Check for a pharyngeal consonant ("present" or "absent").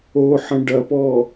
present